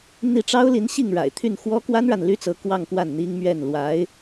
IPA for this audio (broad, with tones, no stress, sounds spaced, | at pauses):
n̪ i˥˩ ʈ͡ʂ ɑ˥ ʊ̯ l i˧˥ n ɕ i˥˩ ŋ ɻ a̰˨˩ ɪ̯ t̪ʰ y˥˩ n x w ɔ˥ k w a˥ n ɻ a˨ n l y˥ t͡s ɤ˧˥ k w ɑ˥˧ ŋ k w a˥˩ n n̪ i˥ ŋ m ɥ ɛ˥˩ n l w a˧˥ ɪ̯